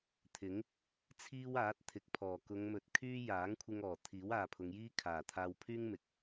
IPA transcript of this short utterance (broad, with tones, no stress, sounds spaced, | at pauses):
t̪ʰ ɪ˨˥ ŋ | t͡sʰ iː˥ w aː˨˥ t̚ t̪ʰ ɪ˨˥ k̚ pʰ ɔː˨˩ k ʊ˨˧ ŋ m ɵ˨˥ t̚ kʰ yː˥ j aː˨˥ ŋ kʷʰ ɪ˧ ŋ ɔː˨˩ t̪ʰ iː˨˥ w aː˨ pʰ ʊ˨˧ ŋ j iː˥ kʰ aː˨˩ t̪ʰ aː˧ w pʰ yː˥ ŋ m ɪ˨˥ k̚